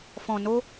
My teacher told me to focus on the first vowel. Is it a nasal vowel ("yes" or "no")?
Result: yes